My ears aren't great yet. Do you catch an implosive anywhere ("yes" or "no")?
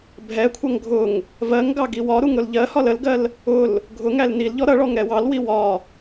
no